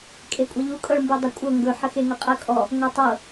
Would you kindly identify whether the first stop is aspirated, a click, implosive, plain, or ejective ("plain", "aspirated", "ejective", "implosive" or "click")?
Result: ejective